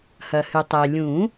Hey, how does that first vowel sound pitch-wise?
low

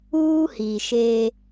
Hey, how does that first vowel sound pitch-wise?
high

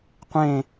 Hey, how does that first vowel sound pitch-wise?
falling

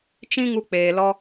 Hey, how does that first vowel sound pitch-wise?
high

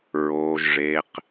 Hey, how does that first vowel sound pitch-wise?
low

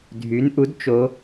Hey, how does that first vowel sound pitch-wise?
rising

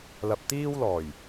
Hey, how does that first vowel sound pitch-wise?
low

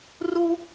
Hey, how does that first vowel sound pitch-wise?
high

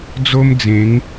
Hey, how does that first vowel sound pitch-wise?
high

